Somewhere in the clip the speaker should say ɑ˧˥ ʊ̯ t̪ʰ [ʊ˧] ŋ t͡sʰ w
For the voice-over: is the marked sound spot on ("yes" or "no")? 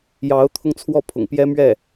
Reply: yes